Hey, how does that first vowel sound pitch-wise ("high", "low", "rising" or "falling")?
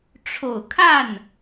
low